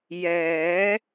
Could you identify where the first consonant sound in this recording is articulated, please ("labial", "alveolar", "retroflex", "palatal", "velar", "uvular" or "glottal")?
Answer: palatal